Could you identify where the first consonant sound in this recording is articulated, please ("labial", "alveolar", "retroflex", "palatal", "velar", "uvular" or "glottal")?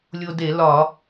alveolar